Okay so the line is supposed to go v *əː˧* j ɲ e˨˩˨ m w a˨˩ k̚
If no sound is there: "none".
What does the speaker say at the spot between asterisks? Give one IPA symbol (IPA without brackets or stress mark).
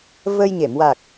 əː˧